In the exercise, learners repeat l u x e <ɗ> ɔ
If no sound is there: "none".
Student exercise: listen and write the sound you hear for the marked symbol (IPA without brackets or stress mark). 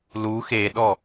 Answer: ɗ